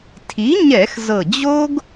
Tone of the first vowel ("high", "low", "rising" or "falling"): rising